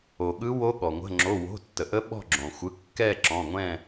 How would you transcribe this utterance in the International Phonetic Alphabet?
o˩ɠɯ˧˥wo˧˥ ɠɔ˩ ŋʷə̤˩˧˩ŋ͡ǁo˩˧˩wo̤˩˧˩tːə˩ ʔə˧˥ɓɔ̤˦˨ɡ͡ǁõ˩ xʷɯ˩˧˩kːɛ˦˨ǁɔ̃˩˧˩ŋʷɛ̃˦˨

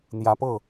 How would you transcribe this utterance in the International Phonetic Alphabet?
n̪jä˧˥pɤ˥˩

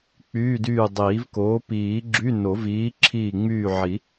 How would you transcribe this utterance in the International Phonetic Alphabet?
k͡pyː˧˥˧dyː˦˨dˤiː˨˩˦vkoː˨˥ piː˨˩˦ɡ͡ǁy˧˥˧ no˨˩˦viː˨˥ ǁʰiː˦˨ŋ͡myː˦˨ʕi˨˩˦

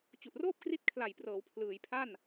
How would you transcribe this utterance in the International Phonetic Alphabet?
t͡ɕu˨˩ʔroː˥˩p̚ kri˦˥t̚kʰla˨˩jprɤː˩˦w pʰlɯː˩˦jpʰa˥˩n

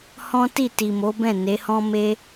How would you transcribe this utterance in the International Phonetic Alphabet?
hɔ̃˦ti˦˨ti˨mo˨˦ bɛ̃˦˨ ne˨˦hɔ̃˦me˦

